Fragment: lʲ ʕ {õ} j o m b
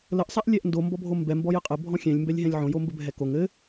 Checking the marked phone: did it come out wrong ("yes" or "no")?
no